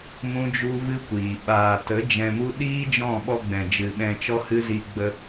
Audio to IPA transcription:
mũ˦d͡ʒu˦vɨ˦kʷiː˨ ɓaː˨tə˨˦ d͡ʒɛ̃˧mu˦ ɗiː˦d͡ʒɔ̃˦˨ɓɔ˧ ɡ͡bɛ̃˨d͡ʒɨ˨ ɓɛ̃˧t͡ʃɔ˦hɨ˦zi˧ ɡ͡bə˧

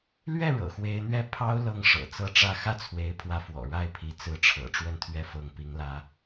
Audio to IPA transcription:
lɥɛ˥˩ ɻɤ̰˨˩xwe˧˥ɪ̯n̪ɥɛ˥˩ pʰɑ˥ʊ̯ lɤ˥˩ŋʂɤ̰˨˩t͡sɤ˥˧ʈ͡ʂä˥˧ xä˥˩t͡sʰwe˧˥ɪ̯pʰwä˧˥fwɔ̰˨˩ ɻa˥˩ɪ̯pʰi˧˥ t͡sɹ̩˧˥ʈ͡ʂʰɤ̰˨˩ ʈ͡ʂwə˥˧nt̪ʰɥɛ˥˧ fɤ˥˩ŋpi˥ŋlä˥

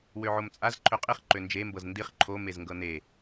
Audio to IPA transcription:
wøʕomt͡sʼaz ǃʰøqʼiχ ǃønd͡ʒe mbɤzndiχ ǃʰo mezŋɡɤne

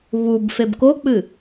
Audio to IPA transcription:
βub febkok͡pɨ

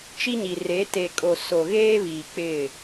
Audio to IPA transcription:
t͡ʃi˦ɲi˨re˨˦ te˨kʼo˨ so˨ɣeː˦βiː˨ k͡pɪ˦˨

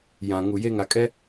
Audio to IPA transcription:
jã˨ ŋu˨je˦ ŋa˨kʼɛ˦

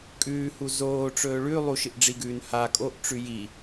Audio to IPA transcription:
kʼʉːhu zoːʈ͡ʂɵː ɭʉ lˠuʃɨʔɖ͡ʐiɡʉːn ha kʼoʔʈ͡ʂʉ ji

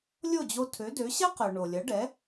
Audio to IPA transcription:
lʲo˥˩d͡ʑo˧tʰø˩˥dø˩˥ ɕɐ˥qœ˩ ɳo˩lʲɐ˩˥ɖɛ˩˥

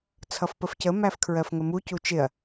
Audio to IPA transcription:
t͡sʰʌfpəfcə mæfkʰɹɜfŋəmu cut͡ʃɪɐ̯

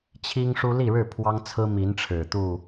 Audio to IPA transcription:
t͡ɕʰi˦ŋʂu˦ li˥˨ɻɻ̩˥˨ pʰwɑ˦ŋt͡sʰɹ̩˦ mi˨˦nʈ͡ʂʰɻ̩˨˩ t̪u˥˨

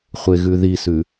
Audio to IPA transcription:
χʷeɣʉðisʉ

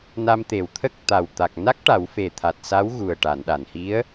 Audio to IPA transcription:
na˧mt̪e˨˩wt̪ʰə˦˥k̚ t̪a˨˩w t̪a˨˩k̚na˦˥k̚ ʈa˨˩˦wfe˨˩t̪ʰa˨˩t̚saː˧˥w ɣu˨˩ə̯ ʈa˨˩˨nɗa˨˩˨nhi˧˥ə̯

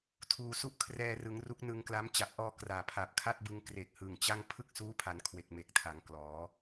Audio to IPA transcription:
tʰuː˨˩su˥˩ʔkʰrɛː˧rɯ˩˦ŋ ru˦˥k̚nɯ˧ŋkla˦˥m t͡ɕa˨˩p̚ʔɔː˧ kraː˨˩pʰa˨˩p̚kʰa˥˩t̚bɯ˧ŋ kre˨˩k̚hɯ˨˩ŋt͡ɕa˥˩ŋ pʰɯ˥˩k̚suː˦˥pʰa˩˦n kʰwe˨˩k̚me˨˩k̚tʰa˩˦ŋ klɔː˩˦

